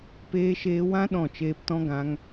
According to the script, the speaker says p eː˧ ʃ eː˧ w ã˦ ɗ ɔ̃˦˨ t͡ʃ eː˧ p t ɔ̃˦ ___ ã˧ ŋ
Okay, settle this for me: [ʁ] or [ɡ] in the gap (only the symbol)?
ɡ